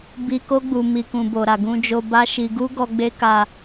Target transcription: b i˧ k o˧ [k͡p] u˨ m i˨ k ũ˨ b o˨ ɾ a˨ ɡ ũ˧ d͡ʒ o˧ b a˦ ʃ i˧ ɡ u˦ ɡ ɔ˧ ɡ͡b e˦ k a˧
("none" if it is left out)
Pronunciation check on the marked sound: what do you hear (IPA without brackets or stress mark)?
ɡ͡b